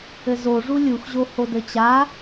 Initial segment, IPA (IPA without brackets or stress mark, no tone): ɘ